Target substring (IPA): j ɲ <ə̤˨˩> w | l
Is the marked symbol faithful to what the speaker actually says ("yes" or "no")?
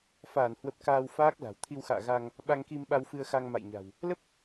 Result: no